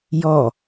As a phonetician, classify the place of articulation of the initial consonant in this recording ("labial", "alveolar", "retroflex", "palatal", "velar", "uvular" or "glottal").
palatal